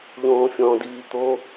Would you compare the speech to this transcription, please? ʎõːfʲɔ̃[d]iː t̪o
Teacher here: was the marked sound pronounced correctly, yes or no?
yes